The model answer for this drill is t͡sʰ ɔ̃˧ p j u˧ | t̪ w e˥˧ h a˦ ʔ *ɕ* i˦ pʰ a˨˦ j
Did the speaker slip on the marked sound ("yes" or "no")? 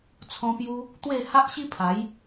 no